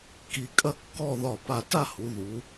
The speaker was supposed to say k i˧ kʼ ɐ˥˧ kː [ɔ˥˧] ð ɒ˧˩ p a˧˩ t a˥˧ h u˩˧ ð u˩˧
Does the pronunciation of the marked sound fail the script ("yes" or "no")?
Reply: no